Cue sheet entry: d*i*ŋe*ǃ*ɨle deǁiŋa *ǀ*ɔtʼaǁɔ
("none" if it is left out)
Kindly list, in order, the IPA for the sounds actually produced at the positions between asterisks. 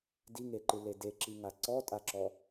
i, ǃ, ǀ

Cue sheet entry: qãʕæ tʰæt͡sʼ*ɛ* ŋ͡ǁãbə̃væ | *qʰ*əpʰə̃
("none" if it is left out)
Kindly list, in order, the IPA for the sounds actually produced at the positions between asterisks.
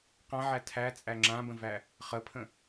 æ, χ

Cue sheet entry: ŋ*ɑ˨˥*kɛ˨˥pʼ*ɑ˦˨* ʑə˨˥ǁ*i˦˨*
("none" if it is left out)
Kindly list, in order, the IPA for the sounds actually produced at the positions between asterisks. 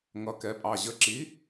ʌ˨˥, ɑ˦˨, i˨˥

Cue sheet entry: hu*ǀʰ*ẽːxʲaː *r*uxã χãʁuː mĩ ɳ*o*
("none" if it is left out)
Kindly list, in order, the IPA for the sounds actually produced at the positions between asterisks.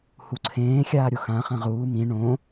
ǀʰ, ɾʲ, õ

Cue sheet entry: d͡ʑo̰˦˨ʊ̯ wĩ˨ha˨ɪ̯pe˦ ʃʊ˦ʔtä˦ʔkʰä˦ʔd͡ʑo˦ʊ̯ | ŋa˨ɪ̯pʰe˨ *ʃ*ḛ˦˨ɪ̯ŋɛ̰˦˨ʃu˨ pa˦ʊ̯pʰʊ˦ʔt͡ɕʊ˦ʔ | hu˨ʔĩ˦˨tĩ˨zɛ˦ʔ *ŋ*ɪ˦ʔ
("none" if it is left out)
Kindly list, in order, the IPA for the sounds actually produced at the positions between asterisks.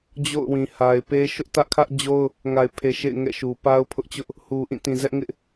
ʃ, ŋ

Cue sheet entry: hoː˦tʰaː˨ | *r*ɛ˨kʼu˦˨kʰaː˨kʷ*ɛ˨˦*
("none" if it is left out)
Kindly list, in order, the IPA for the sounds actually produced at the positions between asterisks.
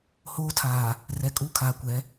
r, ɛ˨˦

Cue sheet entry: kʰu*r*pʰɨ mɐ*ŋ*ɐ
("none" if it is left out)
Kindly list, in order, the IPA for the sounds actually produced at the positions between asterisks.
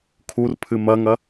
r, ŋ

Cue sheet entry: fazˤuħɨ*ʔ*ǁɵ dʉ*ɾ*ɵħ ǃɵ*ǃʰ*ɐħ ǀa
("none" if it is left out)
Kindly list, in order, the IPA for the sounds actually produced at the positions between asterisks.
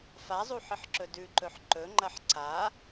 ħ, ǃ, ŋ͡ǃ

